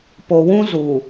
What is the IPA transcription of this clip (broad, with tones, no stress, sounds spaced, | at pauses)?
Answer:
p o˨ w ũ˦ z u˨